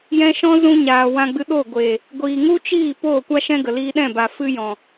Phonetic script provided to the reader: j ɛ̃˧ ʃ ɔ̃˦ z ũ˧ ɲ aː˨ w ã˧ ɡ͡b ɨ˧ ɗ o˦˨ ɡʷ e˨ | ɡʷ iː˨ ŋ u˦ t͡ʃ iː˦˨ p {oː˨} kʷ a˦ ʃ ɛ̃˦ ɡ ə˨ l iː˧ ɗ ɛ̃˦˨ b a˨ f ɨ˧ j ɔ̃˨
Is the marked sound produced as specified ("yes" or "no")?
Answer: no